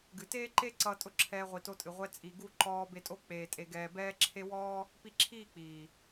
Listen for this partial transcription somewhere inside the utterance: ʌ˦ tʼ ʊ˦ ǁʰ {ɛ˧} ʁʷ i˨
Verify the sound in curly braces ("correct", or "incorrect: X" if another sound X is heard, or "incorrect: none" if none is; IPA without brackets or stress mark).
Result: incorrect: ɛː˧